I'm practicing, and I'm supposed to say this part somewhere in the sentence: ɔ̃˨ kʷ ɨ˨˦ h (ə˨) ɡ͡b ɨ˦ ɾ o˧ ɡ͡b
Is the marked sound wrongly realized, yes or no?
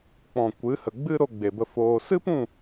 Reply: no